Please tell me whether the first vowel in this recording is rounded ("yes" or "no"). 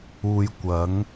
yes